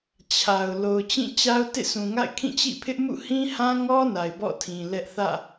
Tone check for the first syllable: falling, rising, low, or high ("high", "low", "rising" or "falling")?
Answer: low